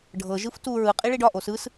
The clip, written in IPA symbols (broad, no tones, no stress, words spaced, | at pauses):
ɖʱɤ ʒɯftu ɹɯ qʼiɭiɖɒ ʔosɯs